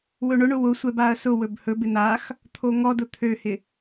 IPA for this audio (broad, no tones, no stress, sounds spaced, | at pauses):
w ɵ ɳ ʊ ɳ ʊ w ʊ sʷ ɛ b a ɐ̯ s ʊ w ɵ b h ɵ b ɪ n̪ a x | t̪ʰ o ŋ ɔ d ʊ t̪ʰ ø h ɪ